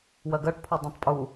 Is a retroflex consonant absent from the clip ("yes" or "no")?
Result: no